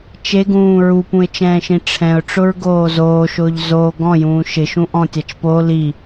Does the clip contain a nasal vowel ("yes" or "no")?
yes